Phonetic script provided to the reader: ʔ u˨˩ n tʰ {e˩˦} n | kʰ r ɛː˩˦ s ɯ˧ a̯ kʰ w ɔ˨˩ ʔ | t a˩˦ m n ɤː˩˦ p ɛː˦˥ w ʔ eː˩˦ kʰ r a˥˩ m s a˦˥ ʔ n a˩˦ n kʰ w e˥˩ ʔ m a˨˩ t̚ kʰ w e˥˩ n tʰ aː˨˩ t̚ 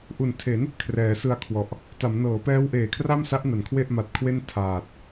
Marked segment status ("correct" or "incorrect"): correct